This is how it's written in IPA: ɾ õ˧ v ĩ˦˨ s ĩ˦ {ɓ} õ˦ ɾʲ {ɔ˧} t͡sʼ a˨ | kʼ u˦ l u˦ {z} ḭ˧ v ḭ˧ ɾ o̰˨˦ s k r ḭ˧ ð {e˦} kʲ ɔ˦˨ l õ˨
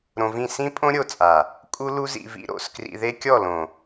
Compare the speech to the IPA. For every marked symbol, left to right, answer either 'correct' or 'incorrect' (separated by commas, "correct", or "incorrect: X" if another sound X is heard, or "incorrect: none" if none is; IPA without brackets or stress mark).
incorrect: pʼ, incorrect: o˧, correct, correct